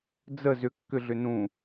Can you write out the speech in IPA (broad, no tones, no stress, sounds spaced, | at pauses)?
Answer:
d͡z ə z ʏ kː ʏ ɮ ʏ n ũ